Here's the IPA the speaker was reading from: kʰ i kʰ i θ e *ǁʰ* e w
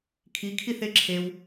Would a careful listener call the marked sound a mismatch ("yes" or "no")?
no